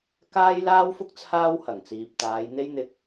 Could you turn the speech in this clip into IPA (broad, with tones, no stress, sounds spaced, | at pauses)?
k aː˥ j l aː˥ w f ʊ˥ k̚ t͡sʰ aː˥ w h ɐ˨˩ ŋ t͡s iː˨ p̚ t̪ aː˨˧ j n̪ e˥ j n̪ ɪ˧ k̚